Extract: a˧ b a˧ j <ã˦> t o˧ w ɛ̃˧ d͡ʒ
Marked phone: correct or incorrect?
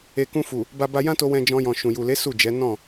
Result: correct